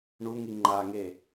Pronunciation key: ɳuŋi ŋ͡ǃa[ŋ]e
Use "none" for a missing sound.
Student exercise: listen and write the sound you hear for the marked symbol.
ŋ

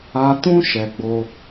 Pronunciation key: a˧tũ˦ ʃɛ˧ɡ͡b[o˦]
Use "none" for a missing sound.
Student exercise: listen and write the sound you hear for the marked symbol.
o˦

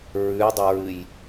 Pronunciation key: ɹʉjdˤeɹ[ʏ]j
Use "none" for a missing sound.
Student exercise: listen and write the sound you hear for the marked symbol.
ɨ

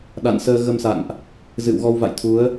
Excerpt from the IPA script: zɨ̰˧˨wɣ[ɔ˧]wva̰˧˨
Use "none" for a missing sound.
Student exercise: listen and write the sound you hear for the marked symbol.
ɔ˧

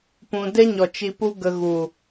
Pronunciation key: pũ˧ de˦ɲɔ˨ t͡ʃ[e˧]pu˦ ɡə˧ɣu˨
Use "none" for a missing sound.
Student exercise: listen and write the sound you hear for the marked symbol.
i˧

